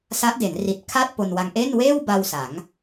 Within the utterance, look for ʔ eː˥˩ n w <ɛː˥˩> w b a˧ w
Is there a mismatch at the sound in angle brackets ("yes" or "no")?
yes